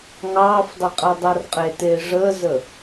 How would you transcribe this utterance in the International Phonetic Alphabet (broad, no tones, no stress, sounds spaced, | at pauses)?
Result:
ŋ ɑː f dˤ e qʼ ɛ dˤ a r qʼ e t eː ʐ əː z ə